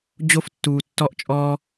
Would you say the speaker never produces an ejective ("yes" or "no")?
no